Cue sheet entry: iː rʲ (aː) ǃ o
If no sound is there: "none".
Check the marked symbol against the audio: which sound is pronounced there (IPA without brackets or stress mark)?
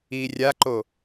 a